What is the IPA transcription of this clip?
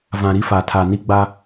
vã˨ɾi˦fa˨tʰa˨ ni˦ɡ͡ba˦

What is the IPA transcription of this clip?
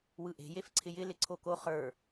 wɯʔe̤ jefǀʰɪjɪ lɪǀʰoko χə˞

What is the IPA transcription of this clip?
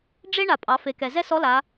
ɖ͡ʐe˥ ɳa˩pʼɑ˩˧fe˩˧kɛ˩ zɛ˥sɔ˧˥la˩˧

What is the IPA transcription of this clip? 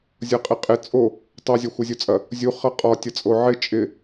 zʲʌqʼɪqʼɪ t͡sʼo | tˤo zʲɒxʷʌzʲot͡sʼɐ | zʲu χʌqʼɒ tʲʌt͡sʼoʕɪ t͡ʃʼɪ

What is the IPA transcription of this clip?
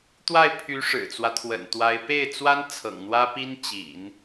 t̪wa˥˩ɪ̯pʰy˧˥ ʂɻ̩˨˩t͡swä˦t̪ʰwə̰˨˩nt̪wa˧˥ɪ̯ pe˥˩ɪ̯t͡swa˥n t͡sʰɤ̰˨˩ŋn̪wä˥pi˥n t͡ɕḭ˨˩˦n

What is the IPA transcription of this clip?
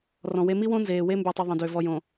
rɔ̃˨we˦ mi˦wõ˦ nzeː˨we˦mbʉ˨tˤʉ˨ ðˤə̃˨dø˨ vɔ˨jõ˨

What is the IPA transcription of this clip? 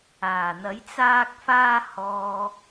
aː˨˩n̪ɐ˨˥j t͡saː˧k̚faː˧hɔː˨

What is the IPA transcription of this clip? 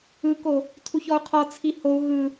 ɯko | tʰuçɔu̯qʰɔ t͡sʰihou̯ ɣɯ

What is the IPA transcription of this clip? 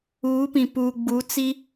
uː˨˦pĩ˨ puː˨ɡ͡bu˨˦ t͡si˦

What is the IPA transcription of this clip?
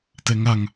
tɛŋaŋ

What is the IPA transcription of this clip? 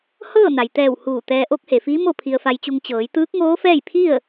hɤː˥˨na˩jt̪ɛː˧˩w huː˧˩t̪ɛː˧ ʔo˧˥k̚he˩fiː˧˥ mo˥˨pʰi˧ə̯fa˧jt͡ɕu˧ŋ t͡ɕɤː˩˧jt̪ɯː˧˥k̚ŋoː˧˥fɛː˥˨j pʰi˥˨ə̯

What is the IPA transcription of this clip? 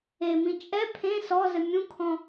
emĩ t͡ʃʼɛ pʰẽ sɔzɘ mʲũkʰɔ̃

